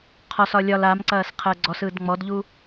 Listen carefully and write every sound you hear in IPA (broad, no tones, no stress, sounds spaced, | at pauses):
qʰ ɔ s ɒ lʲ ɒ l a m ǀ ɐː s qʰ əː ɡ͡ǀ ɔ s ɯː d ŋ͡m ɔ d ʎ u